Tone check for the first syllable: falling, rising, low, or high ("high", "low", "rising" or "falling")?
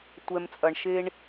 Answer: low